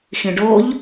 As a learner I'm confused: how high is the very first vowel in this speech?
high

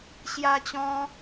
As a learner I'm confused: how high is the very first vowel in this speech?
low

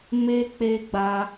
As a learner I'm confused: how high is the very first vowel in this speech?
mid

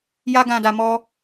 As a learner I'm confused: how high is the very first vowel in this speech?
low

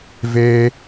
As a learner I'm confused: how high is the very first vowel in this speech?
mid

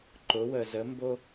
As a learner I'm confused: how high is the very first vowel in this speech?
high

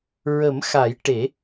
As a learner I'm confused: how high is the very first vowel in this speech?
mid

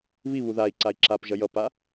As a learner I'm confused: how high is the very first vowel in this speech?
high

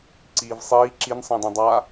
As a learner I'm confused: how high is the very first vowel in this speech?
high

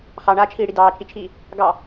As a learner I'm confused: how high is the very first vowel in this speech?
low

